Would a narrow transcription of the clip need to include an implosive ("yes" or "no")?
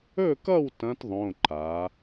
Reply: no